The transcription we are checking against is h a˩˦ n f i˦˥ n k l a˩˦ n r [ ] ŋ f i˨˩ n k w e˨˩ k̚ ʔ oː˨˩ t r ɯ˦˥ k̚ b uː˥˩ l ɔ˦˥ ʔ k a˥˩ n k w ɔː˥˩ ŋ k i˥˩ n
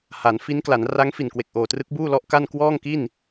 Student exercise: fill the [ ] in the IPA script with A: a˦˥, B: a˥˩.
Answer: A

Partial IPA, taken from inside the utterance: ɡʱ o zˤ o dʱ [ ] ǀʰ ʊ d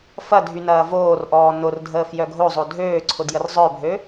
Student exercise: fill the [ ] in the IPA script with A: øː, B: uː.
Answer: A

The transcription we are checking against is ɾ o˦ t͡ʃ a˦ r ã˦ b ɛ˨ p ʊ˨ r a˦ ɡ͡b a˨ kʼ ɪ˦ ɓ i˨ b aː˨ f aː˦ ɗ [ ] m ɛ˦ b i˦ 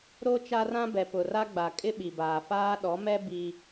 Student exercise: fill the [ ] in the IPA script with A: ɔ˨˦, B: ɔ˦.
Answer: A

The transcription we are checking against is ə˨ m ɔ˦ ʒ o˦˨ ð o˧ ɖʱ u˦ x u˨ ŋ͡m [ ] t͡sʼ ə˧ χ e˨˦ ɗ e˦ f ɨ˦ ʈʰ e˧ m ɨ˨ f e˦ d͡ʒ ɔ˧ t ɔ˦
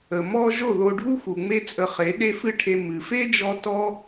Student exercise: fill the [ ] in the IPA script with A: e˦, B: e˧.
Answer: A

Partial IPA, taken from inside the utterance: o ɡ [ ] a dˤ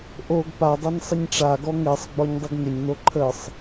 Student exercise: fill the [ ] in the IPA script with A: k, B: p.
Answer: B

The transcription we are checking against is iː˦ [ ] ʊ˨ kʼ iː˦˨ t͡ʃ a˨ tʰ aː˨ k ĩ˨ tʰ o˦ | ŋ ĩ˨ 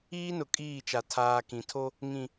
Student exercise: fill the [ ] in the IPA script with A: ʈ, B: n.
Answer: B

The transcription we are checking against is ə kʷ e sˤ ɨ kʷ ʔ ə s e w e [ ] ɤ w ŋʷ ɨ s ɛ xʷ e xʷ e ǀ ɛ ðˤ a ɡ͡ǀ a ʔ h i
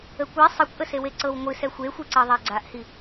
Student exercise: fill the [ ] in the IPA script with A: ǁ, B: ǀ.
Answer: B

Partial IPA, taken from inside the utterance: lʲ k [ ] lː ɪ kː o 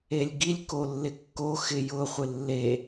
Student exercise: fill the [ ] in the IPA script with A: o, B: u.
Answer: A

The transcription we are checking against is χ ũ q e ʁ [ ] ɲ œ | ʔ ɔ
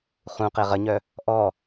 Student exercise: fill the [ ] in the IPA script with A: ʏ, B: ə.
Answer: B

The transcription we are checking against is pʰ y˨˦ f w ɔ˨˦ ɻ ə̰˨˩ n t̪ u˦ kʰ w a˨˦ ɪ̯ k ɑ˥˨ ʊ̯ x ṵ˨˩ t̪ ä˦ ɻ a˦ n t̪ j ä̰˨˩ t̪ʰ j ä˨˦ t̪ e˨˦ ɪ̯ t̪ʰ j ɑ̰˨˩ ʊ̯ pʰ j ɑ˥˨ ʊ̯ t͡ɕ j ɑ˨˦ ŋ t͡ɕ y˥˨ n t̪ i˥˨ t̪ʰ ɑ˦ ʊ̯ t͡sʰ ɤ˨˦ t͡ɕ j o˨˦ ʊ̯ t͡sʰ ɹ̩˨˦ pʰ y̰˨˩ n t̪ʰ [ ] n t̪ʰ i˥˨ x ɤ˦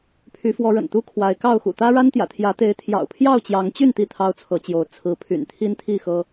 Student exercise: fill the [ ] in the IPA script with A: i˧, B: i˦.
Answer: B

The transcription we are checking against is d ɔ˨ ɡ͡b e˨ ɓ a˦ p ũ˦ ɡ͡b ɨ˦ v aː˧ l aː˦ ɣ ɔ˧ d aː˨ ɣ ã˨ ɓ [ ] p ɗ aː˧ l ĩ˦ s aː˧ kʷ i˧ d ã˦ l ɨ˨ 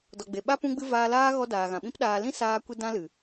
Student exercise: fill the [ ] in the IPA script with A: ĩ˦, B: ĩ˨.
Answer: A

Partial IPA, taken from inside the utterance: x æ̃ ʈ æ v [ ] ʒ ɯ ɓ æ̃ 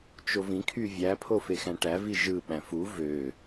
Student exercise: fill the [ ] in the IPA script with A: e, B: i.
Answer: B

